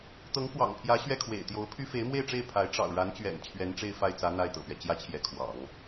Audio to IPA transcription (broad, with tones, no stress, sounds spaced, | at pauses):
t̪ ɤ˧˥ ŋ k w ɑ̰˨˩ ŋ pʰ j ä˧˥ ɕ ɥ ɛ˥˩ kʰ w ḛ˨˩ ɪ̯ t̪ j o˧˥ ʊ̯ pʰ y˥ f e˧˥ ɪ̯ m w e˥˧ ɪ̯ ʈ͡ʂ e˥˩ ɪ̯ pʰ a˧˥ ɪ̯ ʈ͡ʂ ɑ̰˨˩ ʊ̯ ɻ a˧˥ n t͡ɕ ɥ ɛ̰˨˩ n t͡ɕʰ ɥ ɛ˧˥ n ʈ͡ʂ e˥˧ ɪ̯ f a˥˩ ɪ̯ t͡s ä˧˥ n̪ a˥˩ ɪ̯ t̪ ɤ̰˨˩ p ɥ ɛ˦ t͡ɕ j ä˥ t͡ɕʰ j ɛ˧˥ kʰ w ɑ̰˨˩˦ ŋ